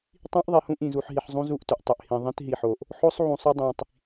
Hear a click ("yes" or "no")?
no